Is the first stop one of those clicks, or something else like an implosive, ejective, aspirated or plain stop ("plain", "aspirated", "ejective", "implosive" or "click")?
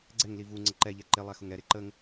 click